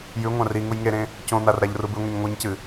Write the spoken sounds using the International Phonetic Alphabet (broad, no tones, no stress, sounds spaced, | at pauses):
j ʉ ŋʷ ã r i ŋ u j ŋ e ɾ ẽ | c õ n̪ a r ɾ a ʎ r u b ɨ ŋʷ e ɲ ŋʷ ɨ ɲ c ɨ